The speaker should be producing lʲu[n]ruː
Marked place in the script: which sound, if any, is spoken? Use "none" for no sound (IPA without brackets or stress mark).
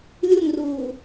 n